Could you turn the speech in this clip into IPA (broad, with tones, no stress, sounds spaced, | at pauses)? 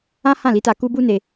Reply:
ã˦ h ã˦˨ l i˨˦ t a˧ k u˦ b u˦ n e˧